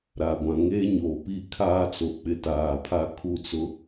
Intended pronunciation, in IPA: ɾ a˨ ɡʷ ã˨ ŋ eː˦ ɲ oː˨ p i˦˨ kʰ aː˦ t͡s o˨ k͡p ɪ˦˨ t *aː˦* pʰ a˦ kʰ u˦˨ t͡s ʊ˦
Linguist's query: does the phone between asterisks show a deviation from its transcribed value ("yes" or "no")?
yes